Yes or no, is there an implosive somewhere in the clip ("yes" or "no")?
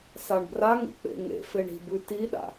yes